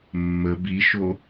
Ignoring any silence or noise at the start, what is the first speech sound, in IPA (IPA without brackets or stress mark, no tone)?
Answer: mː